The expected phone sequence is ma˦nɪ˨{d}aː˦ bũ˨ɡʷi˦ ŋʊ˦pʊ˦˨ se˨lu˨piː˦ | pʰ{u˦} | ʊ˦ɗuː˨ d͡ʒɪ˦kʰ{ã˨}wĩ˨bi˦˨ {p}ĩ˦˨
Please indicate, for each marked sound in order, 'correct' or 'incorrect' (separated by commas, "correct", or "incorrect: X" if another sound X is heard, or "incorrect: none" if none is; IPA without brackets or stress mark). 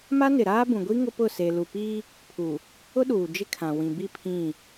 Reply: incorrect: ɾ, incorrect: u˨, correct, incorrect: pʰ